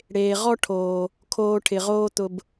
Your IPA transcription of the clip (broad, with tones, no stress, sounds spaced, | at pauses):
ɽ eː˨ ʁ ɔ˦ ʈʰ oː˨ | kʰ oː˧ ʈʰ ɪ˨ ʁ oː˦ t̪ ʊ˧ b